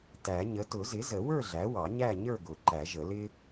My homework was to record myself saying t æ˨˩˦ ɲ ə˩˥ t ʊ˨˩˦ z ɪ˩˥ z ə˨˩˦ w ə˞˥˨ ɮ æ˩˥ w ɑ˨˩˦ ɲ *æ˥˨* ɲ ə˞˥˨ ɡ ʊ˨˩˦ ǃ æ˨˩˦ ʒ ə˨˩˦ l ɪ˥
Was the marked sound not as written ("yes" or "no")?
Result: no